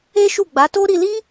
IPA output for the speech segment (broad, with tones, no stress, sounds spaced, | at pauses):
e˦ ʃ u˦˨ ɡ͡b a˨˦ t o˦ ɾ i˧ l i˦